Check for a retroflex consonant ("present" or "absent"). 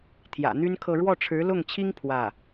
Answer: present